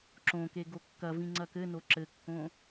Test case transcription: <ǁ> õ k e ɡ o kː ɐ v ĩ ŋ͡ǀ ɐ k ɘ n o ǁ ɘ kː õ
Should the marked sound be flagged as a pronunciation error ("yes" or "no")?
no